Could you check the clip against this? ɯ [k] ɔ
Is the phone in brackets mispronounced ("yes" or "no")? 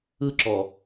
yes